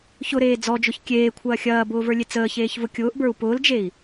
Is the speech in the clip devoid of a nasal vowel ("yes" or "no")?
yes